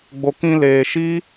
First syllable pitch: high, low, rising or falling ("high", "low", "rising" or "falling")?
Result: low